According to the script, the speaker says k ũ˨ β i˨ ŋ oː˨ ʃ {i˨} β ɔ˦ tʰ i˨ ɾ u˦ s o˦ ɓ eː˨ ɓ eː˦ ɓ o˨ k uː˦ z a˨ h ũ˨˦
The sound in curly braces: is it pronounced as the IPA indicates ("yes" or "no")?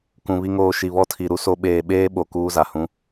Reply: yes